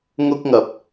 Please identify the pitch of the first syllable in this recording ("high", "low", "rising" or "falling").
high